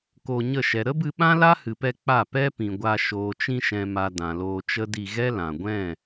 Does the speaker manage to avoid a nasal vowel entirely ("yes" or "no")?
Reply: no